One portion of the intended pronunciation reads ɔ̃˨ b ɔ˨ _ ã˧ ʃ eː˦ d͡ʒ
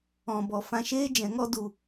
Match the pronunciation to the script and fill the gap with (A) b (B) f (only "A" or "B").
B